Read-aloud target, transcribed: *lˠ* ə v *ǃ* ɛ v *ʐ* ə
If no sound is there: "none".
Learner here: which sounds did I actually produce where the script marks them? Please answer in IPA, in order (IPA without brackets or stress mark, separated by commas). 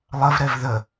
lˠ, ɾ, ð